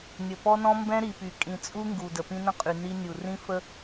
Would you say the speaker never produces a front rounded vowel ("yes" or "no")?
no